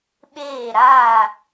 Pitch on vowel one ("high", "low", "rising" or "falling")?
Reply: falling